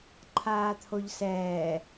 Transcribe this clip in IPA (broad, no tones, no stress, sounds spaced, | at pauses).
ǃʰ aː t̪ʰ o ʎ s ɛː